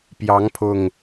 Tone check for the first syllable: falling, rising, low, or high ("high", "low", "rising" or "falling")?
rising